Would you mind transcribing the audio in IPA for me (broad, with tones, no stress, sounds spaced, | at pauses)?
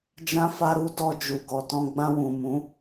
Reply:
d͡ʒ ã˧ f a˧ ɾ u˧ d ɔ˧ d͡ʒ u˨ ɡ ɔ˨ t ɔ̃˧ ɡ͡b ã˧ w ũ˨ m ũ˨˦